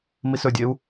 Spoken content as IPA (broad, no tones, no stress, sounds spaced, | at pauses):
m i s ɵ dʲ e u̯